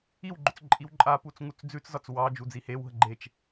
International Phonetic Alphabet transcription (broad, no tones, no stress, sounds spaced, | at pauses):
i w ɡ͡ǃ ʏ t͡s ǃʼ i w ǃʼ a p u t͡s ŋ u t͡s d͡z ʉ t͡s z ɒ t͡s w ɑ d͡ʒ u d͡z i h e w ɦ ə ɡ͡ǃ e t͡ʃ